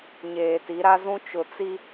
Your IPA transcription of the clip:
ɲ eː˨ t i˨˦ ɾ a˦ z ũ˦ t͡ʃ ʊ˨ t͡s i˦

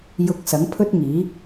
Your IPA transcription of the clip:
j ʊ˧ k̚ s ɐ˨˥ ŋ pʰ ɵ˥ t̚ ŋ iː˨˥

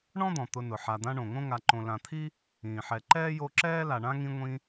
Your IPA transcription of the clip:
ɳ ɔ̃˥ d̪ ɔ̃˩ t̪ ʊ˨ n ʊ˩ ħ a˨ d̪ ã˦ ɳ õ˩ ŋ õ˥ ŋ a˨ ǃ õ˨ l ã˨ t̪ʰ i˥ | ĩː˩ ħ ɛ˨ ǃ ɛː˥ j o˦ ǁ ɛː˥ l a˨ ɳ ã˥ ŋ ĩ˦ ŋʷ ĩ˦

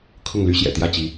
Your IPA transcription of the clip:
kʰ ʊ˥˩ ŋ l y˥ ɕ j ɛ̰˨˩ t̪ j ä˥˩ t͡ɕ i˧˥

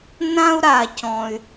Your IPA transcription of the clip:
n ã˦ u̯ ɾ a˨ c ɔ̃˨ y̯

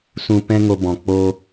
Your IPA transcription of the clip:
s ũ˧ p ɛ̃˦ ŋ o˧ b ɔ̃˨ k͡p o˧

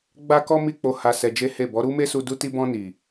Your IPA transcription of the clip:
ɡ͡b a˦ k ɔ˦ m i˦˨ k͡p o˧ h a˧ s ɛ˧ d͡ʒ e˦ h e˦˨ b ɔ˨˦ ɾ u˦ m e˦ s u˧ d u˧ t i˧ b ɔ̃˧ n i˨

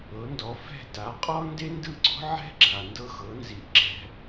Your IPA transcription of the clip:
ɤ˩˥ n d ɔ˩˥ f ɛ̤˥˩ t a˩˥ qʼ ɔ˥ n d e˥ n d ɯ˥˩ ɡ͡ǀ ɔ̤˥ ʕ ɛ̤˥ ɡ͡ǁ a˩ n d ɤ˥˩ x ɤ˩˥ n z i˩ ʔ ǁ ɛ̤˧

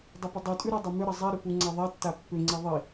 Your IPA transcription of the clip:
dˤ ʏ p ʏ dˤ u tʼ ʉ ɾ i dˤ ʏ m ʏ ɾ ə zˤ i ɾ ʏ p u ŋ͡ǀ a ðˤ a tː a pː ʏ ŋ͡ǀ i ðˤ i

